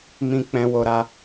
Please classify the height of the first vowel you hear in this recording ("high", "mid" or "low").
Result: high